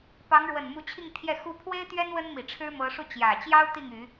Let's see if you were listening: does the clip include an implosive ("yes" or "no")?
no